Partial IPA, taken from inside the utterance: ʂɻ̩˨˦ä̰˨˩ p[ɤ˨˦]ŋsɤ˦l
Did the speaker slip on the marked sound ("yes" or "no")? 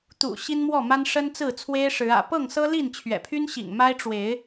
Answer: yes